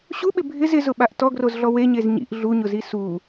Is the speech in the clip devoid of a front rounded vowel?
yes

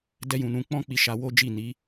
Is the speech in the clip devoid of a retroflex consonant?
yes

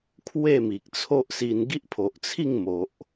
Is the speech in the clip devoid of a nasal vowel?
yes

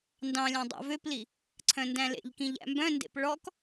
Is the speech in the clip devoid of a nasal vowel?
no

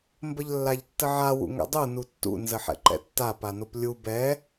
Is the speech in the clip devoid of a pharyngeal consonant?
no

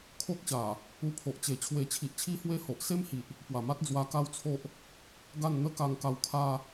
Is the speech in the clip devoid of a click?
yes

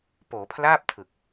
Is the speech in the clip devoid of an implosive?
yes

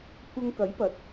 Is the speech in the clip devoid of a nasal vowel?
yes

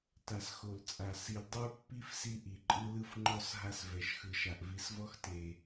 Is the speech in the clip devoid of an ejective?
no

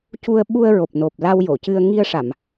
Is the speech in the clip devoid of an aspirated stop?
yes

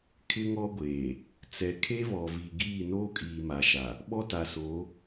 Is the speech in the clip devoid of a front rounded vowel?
yes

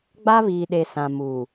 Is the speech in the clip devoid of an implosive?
no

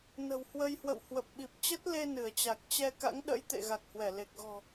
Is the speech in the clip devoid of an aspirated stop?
yes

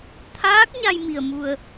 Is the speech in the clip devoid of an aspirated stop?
no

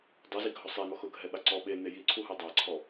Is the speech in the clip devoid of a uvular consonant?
yes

